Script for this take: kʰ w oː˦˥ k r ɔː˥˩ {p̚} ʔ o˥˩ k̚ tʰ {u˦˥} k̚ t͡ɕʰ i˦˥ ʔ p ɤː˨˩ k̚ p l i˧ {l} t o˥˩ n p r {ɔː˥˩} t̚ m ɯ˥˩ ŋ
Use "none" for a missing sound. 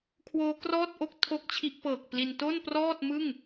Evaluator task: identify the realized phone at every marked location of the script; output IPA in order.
t̚, o˦˥, n, ɔː˥˩

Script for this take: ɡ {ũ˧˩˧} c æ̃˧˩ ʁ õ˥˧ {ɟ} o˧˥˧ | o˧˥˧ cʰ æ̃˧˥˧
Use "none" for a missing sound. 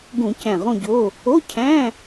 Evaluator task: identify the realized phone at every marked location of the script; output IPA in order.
ũ˧˩˧, ɟ

